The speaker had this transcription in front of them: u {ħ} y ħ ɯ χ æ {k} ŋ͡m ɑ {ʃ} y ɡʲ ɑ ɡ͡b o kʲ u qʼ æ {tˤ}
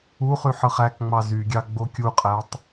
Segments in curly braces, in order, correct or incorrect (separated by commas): incorrect, correct, incorrect, correct